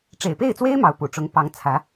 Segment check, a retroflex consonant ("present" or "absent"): present